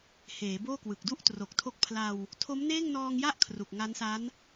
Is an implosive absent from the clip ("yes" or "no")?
yes